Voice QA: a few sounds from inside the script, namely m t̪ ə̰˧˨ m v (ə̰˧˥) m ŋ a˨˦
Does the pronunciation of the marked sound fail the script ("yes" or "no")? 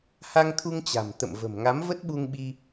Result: yes